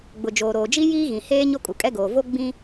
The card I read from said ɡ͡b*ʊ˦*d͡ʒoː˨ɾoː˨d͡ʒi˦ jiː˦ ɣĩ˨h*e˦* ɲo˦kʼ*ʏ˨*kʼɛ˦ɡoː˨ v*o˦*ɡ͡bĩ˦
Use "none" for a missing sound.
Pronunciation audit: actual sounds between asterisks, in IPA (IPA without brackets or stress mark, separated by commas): ʊ˨, eː˦, u˨, o˦